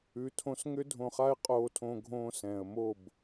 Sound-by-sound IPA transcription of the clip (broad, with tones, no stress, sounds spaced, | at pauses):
ʉ˨˦ tʰ õ˧ s ŋ ʏ˦ dʱ õ˧ χ a˦ ɪ̯ qʼ oː˧ tʰ õ˧ ɡʱ õː˧ s ɛ̃ː˨ ə̯ m o˦˨ b